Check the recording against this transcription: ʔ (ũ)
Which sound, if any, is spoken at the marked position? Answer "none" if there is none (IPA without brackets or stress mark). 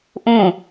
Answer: ũ